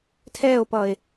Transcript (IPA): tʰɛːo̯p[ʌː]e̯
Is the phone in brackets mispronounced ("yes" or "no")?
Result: no